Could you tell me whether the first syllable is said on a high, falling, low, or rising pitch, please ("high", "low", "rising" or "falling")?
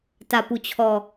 falling